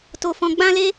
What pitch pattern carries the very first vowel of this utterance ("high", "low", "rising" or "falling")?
high